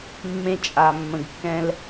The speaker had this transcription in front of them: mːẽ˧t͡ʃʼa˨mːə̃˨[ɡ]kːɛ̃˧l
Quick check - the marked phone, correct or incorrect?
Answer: correct